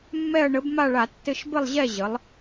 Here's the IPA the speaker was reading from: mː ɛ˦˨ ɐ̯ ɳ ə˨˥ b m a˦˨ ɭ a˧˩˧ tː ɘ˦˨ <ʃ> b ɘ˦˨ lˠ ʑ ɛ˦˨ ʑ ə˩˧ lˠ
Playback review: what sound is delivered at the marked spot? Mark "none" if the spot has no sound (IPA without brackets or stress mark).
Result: ʃ